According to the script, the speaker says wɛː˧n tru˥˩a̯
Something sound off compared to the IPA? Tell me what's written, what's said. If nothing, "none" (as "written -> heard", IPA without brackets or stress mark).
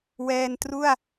none